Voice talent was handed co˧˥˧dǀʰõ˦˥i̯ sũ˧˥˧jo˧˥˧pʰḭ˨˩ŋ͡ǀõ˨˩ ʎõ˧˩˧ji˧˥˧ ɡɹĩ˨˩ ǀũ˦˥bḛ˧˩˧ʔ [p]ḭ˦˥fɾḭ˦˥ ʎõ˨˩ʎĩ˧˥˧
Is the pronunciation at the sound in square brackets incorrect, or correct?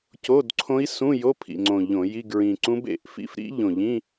incorrect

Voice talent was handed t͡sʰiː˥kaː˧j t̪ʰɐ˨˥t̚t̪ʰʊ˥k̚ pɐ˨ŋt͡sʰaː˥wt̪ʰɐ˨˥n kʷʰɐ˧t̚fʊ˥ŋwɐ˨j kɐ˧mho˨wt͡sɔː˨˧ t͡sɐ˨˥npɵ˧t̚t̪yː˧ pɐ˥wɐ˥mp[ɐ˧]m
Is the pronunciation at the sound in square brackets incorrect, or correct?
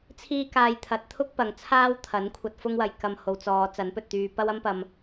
correct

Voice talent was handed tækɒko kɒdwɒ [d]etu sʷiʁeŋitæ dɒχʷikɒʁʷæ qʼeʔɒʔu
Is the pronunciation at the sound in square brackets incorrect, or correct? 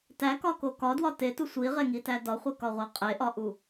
incorrect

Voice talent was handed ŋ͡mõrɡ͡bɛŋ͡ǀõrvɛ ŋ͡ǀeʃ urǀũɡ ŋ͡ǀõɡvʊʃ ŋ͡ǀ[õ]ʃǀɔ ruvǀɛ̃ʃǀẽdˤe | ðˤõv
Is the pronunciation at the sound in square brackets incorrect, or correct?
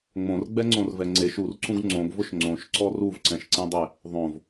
correct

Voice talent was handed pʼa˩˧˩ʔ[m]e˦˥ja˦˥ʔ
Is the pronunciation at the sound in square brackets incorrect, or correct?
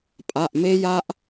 correct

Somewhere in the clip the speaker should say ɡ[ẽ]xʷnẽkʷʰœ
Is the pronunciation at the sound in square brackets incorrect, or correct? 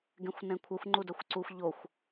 correct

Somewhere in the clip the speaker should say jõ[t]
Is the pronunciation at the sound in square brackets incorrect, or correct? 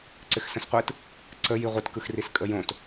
correct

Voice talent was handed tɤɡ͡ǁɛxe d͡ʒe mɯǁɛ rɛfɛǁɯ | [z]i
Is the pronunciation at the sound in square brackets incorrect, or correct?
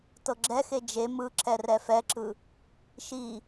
incorrect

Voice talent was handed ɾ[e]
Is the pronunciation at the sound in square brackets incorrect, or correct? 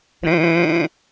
incorrect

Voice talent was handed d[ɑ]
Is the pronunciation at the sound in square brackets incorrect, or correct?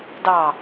correct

